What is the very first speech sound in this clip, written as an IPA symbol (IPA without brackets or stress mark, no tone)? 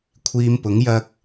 kʷʰ